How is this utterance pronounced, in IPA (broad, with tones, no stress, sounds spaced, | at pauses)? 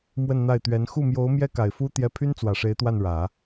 m w ə˥˧ n n̪ a˥˩ ɪ̯ t̪ ɥ ɛ˧˥ n x u˥˩ m j o˧˥ ʊ̯ m j ɛ˥ k a˨˩ ɪ̯ f u˥ t̪ j ɛ˧˥ pʰ y˥ n t͡s w ä˨˩ ʂ e˧˥ ɪ̯ t̪ w a˥˩ n ɻ ä˨˩˦